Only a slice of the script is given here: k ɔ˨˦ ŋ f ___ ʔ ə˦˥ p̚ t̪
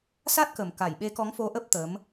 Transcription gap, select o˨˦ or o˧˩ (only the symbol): o˨˦